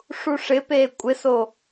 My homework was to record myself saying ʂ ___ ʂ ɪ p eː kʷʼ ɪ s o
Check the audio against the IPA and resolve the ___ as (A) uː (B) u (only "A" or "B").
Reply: B